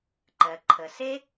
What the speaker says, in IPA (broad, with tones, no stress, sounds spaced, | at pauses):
ǃ ɜ˩ ǃʰ ə˩ s e˥